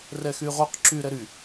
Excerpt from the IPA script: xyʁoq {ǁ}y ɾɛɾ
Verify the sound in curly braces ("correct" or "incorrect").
correct